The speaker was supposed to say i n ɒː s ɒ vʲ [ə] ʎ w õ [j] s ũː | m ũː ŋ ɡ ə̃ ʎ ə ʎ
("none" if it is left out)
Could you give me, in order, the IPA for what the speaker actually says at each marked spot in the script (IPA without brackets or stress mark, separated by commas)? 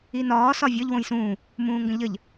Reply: ɔ, j